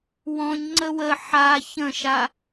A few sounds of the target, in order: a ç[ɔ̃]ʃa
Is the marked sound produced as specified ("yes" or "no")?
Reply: no